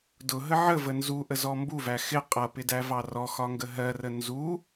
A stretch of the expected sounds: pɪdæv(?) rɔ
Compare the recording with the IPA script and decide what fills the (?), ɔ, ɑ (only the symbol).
ɑ